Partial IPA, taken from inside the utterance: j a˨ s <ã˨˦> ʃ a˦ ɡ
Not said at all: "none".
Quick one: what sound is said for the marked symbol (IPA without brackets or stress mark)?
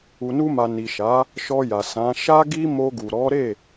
ã˨˦